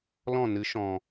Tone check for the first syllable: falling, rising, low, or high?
falling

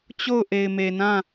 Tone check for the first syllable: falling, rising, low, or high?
falling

